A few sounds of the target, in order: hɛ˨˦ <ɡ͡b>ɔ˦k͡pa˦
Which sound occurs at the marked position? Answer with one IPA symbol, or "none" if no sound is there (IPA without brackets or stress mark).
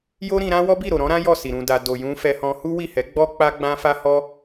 ɡ͡b